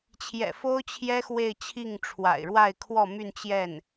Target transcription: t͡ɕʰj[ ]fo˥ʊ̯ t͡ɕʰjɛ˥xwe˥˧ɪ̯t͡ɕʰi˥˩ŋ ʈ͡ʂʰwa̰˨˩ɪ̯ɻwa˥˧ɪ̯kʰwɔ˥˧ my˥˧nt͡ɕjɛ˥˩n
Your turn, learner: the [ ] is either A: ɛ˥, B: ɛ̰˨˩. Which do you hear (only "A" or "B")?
B